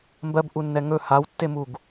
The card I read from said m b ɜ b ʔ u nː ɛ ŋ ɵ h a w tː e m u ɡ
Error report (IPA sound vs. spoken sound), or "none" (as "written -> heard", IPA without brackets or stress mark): none